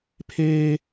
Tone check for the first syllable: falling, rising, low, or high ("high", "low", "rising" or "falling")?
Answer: high